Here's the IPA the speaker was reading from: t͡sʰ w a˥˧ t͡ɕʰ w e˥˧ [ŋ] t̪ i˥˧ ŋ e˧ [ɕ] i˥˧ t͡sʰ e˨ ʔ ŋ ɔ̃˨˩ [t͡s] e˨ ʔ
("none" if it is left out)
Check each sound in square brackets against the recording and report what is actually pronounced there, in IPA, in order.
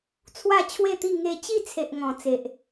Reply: none, t͡ɕ, t͡s

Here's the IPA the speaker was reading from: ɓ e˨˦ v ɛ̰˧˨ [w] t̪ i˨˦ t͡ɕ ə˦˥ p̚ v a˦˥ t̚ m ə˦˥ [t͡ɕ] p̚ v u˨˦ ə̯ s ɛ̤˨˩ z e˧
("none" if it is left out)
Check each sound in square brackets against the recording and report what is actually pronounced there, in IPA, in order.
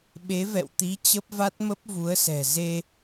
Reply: w, none

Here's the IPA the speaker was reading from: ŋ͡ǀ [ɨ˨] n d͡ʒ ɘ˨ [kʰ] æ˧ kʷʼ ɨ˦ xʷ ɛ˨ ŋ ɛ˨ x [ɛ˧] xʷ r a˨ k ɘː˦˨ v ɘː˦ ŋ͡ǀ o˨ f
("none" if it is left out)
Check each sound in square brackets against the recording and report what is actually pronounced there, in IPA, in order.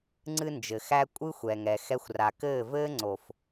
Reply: ɨ˧, x, ɛ˧

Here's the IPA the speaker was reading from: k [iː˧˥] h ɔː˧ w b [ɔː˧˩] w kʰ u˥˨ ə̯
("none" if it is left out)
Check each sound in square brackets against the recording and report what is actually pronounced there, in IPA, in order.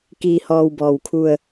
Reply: iː˧, ɔː˧˩

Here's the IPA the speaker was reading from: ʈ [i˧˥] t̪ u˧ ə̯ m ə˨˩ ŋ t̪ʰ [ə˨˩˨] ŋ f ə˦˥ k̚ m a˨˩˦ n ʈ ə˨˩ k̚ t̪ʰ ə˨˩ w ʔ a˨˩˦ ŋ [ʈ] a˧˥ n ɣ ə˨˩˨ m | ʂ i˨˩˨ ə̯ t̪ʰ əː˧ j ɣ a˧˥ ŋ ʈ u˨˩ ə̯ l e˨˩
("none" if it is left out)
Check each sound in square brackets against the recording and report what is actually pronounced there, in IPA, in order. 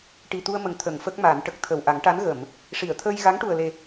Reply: i˨˩, ə˨˩˨, ʈ

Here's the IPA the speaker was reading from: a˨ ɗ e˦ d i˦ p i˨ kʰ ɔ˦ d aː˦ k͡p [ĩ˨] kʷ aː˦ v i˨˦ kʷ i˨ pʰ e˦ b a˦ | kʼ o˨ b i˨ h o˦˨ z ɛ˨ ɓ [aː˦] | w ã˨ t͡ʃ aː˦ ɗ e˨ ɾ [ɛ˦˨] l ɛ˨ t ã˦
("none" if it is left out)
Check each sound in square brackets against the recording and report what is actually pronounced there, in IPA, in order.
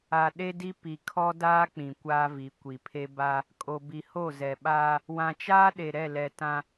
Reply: ĩ˨, aː˦, ɛ˦˨

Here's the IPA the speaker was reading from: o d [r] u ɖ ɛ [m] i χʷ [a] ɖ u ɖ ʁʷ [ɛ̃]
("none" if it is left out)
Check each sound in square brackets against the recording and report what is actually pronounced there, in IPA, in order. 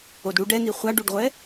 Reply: ɽ, n, a, ɛ

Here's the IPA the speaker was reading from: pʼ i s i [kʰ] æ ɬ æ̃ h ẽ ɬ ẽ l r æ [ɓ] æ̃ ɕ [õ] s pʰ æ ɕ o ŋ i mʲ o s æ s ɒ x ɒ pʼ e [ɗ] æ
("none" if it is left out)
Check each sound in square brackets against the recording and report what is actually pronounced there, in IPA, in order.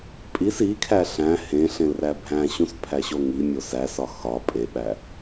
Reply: kʰ, bʱ, ũ, ɓ

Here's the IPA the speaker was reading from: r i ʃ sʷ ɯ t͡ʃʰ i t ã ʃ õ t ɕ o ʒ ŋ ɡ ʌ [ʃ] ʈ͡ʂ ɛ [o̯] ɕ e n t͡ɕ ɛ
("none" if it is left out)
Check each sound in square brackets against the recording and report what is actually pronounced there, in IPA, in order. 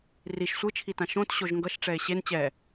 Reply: ʃ, e̯

